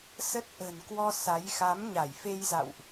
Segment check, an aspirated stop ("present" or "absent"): absent